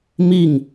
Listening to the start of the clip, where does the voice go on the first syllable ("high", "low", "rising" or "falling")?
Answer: falling